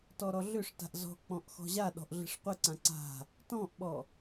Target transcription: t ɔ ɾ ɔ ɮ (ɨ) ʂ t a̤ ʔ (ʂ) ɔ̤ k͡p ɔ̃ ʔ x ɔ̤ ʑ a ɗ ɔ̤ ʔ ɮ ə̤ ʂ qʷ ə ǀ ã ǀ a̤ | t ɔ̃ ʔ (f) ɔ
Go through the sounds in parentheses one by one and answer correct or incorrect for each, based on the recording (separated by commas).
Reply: incorrect, incorrect, incorrect